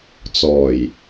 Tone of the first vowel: low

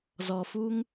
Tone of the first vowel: low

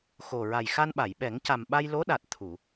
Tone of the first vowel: low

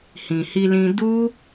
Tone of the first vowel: low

